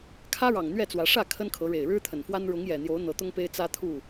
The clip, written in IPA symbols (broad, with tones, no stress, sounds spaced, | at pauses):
kʰ ä˦ ɻ ɑ˨˩ ŋ n̪ ɥ ɛ˥˨ t͡s w ä˨˦ ʂ ä˥˨ kʰ ə˦ n kʰ ɤ˨˦ ɻ e˨˩ ɪ̯ ɻ ɻ̩˦ t̪ʰ ə˨˩ n f w a˦ n ɻ ʊ˨˦ ŋ j ɛ˨˩ n̪ j o˨˦ ʊ̯ n̪ ɤ˨˦ t̪ ʊ˦ ŋ p e˦ ɪ̯ t͡s ä˦ t̪ʰ u˥˨